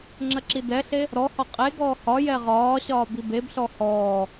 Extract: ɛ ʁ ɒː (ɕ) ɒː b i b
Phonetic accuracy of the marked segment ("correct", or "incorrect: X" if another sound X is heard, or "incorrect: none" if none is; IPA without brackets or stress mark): correct